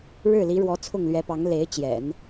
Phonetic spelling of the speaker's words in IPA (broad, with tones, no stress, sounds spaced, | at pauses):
ɻ ɻ̩˥˩ l i˧˥ ɻ w ɔ˧˥ t͡sʰ ʊ˥˩ ŋ l ɥ ɛ˧˥ p ɑ˧˥ ŋ l e˧˥ ɪ̯ t͡ɕ j ɛ̰˨˩˦ n